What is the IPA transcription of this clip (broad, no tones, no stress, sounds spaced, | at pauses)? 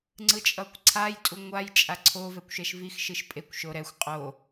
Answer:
ŋ͡ǀ ɯ t͡ʃʼ ʌ kʷ ǀʰ a j tʼ u ŋʷ a j t͡ʃʼ a ǀʰ o v ɛ kʷ ʃ ɛ ʃ v i x ʃ ɯ ʃ pʼ e kʷ ʃ o ɾ ɛ xʷ qʼ o